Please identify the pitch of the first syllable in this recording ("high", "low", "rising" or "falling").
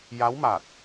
rising